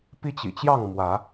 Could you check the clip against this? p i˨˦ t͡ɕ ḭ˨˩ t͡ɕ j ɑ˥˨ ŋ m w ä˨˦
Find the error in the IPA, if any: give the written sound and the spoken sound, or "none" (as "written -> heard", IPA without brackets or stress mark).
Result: i˨˦ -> i˦